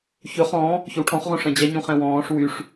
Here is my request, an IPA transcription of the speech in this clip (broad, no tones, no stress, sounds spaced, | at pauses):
ç ɵ χ ɔ̃ | ç ɵ w ʈʰ ɔ̃ χ ʁ õ ʂ ɛ̃ d͡ʑ æ ɲ ũ χ ɛ̃ w ɔ̃ː ʂ w y ʂ